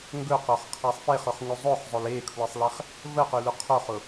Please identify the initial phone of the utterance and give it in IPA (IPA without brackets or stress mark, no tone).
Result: ŋ